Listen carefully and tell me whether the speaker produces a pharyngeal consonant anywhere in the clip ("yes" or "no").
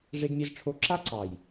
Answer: no